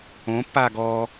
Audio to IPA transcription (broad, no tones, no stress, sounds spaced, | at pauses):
õ pː aː ɡ ɔː